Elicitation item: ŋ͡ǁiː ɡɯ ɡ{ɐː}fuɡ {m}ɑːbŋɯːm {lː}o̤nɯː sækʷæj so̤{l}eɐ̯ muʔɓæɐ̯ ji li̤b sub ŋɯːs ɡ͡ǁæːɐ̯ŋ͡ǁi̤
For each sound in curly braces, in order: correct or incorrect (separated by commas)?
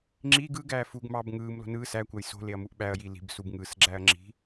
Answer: incorrect, correct, incorrect, correct